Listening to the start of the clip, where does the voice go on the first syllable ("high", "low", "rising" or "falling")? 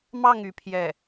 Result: falling